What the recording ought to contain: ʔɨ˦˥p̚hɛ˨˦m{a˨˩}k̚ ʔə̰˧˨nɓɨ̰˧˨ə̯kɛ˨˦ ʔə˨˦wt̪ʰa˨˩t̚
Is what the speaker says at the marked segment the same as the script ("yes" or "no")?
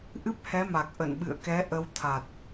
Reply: yes